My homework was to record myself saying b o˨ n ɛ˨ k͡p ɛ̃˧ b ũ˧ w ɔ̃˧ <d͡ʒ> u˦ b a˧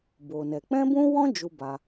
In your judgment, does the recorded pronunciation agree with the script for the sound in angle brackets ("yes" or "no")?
yes